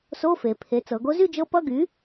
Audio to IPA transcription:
so˧˥˧fe˩˧pʰe˩˥ t͡sɤ˩˧ɡo˧˥zy˥˧d͡ʒɤ˧˥ pʌ˧˥˧ɡy˩˥

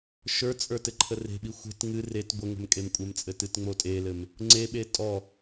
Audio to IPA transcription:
ʃə˞t͡sʼə˞ tɘǃʰəre̤ɓi xʷe̤t ŋɨ ret ɡʷəŋə̤m kʼemkʷʼəmt͡sʼɘ tɨtŋ͡motʼelɘm | ŋ͡ǀeɓe tʼɔ

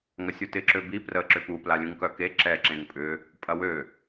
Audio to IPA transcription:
ŋɐsʲutɪ ǁøbi prə ǁʏpu plalʲũŋkœke ǁɛ ǁẽŋpʼʏ | pʼɐwø

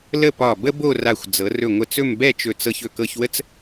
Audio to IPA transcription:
lə˥˧pɒ˧˩bə˥ bo˥˧ra˧˩xʷ d͡zɤ˩˧rɵ˧˩ŋʷə˧˩t͡sɵ˥˧m bɛ˥˧t͡ʃɵ˧˩t͡sɤ˧ç ɵ˧˩kɤ˧çwə˥t͡s

